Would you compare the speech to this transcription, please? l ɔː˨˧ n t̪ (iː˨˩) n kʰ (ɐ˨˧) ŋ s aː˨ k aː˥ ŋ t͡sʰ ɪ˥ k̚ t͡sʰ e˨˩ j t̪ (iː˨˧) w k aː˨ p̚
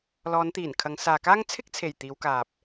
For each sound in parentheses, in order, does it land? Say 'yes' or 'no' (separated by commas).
yes, yes, yes